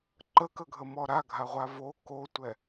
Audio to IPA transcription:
ǃ ə k ə ɡʱ ə m ɔ ɾ a ɡʱ a ʁʷ a v o k o tʷ ɛ

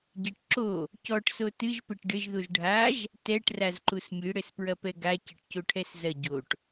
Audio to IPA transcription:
ɟ e ʈ ǁ o | c ɔ ʈ s o t ɨ ʒ p e ʈ ɖ ɘ ʒ ð u z ɖʱ a ʒ | t ɛ ʈ r a z ǃ u s mʲ ɨ ɽ ɘ s p ɹ ɐ p ɛ ɡ a c ɐ ʈ c o ʈʰ ɛ s z ɐ ɟ o ʈ

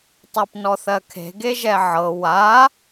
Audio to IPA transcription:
tˤ a p n ɔ θ ɜ kʰ e̤ ɡ e ʒ ɛ ʕ ɤ w a

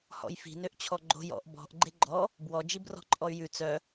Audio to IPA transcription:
h ɔ̰ j f i̤ n ø ʔ t͡ɕʰ ɔ ɡ͡ǃ o̤ j ɔ̰ ʔ b ɔ̤ ʔ ɡ͡ǃ e ɡ͡ǃ ɔ | b w ɔ d͡ʒ i b r ɔ̤ ǃʼ ɔ y̯ j ʉ t͡s œ

